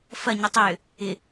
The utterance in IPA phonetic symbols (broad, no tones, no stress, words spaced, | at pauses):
fɐɲi tˤʏjʏ | ɪ